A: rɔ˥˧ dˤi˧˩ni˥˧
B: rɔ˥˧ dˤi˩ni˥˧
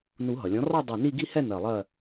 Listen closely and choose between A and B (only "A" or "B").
A